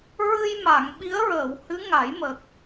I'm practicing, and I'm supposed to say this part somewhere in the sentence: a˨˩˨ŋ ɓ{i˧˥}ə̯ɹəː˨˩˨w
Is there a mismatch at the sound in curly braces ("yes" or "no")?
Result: no